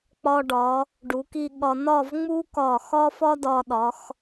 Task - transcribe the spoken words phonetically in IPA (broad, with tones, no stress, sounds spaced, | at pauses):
k͡p ɒ˧ ɖ ɒ˩˧ | ɖ u˩˧ k i˥˧ ɠ ɒ˧ n ɒ˥˧ v ŋ͡m u˥ k ɒ˧˩ x ɒ˥ f ɒ˥ d ɒ˧ ɗ ɒ˩˧ x